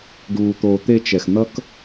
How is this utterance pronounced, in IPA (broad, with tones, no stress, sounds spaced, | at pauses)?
ɖ uː˩ t̪ oː˩ t̪ e˨ t͡ʃ ɛ˨ x n̪ ʌ˦ k